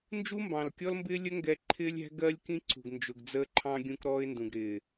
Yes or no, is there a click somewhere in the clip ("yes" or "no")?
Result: yes